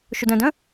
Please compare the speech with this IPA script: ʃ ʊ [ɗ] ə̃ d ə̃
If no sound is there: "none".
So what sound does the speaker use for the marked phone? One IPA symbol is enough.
d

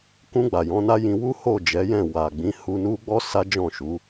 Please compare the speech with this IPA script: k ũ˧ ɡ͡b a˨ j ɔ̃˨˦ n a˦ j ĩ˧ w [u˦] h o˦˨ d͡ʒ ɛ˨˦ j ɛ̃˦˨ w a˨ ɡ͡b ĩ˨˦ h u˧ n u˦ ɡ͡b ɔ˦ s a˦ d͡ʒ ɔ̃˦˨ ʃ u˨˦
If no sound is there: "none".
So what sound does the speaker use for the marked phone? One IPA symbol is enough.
u˦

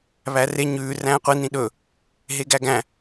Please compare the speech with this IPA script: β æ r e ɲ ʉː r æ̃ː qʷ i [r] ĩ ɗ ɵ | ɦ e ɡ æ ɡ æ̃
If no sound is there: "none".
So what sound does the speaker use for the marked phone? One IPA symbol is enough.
n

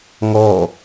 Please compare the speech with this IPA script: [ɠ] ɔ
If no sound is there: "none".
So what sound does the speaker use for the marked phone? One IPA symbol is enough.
ŋ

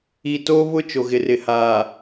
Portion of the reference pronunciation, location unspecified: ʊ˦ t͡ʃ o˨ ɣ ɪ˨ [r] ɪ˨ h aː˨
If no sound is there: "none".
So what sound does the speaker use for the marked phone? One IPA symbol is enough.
r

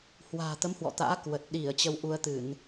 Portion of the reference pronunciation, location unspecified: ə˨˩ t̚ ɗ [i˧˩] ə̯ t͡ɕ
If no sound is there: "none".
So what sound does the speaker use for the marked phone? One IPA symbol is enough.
i˧˩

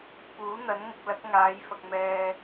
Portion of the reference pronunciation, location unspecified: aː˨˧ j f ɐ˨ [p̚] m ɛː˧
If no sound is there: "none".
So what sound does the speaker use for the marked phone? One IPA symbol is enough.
k̚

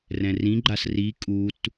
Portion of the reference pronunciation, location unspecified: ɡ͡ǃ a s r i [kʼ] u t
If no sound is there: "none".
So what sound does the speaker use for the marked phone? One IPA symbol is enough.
kʼ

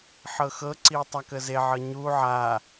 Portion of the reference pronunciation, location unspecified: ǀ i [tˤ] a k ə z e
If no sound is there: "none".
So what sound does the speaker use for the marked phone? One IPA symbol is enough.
tˤ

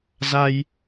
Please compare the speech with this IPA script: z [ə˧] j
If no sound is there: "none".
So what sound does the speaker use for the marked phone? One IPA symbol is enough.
a˧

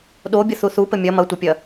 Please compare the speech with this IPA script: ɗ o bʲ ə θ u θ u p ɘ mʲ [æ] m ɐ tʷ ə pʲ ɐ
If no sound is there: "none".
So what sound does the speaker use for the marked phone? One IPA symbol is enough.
ɐ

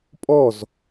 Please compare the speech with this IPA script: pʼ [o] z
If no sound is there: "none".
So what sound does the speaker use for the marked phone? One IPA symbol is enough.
ɔ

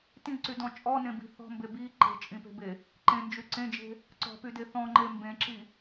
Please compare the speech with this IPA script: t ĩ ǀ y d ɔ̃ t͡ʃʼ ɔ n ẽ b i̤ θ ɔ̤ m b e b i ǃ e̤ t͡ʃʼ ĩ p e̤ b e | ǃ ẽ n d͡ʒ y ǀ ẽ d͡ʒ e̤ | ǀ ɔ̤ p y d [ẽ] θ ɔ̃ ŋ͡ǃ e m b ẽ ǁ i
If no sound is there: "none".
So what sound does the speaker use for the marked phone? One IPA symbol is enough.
e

